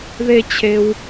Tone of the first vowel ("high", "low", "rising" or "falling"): high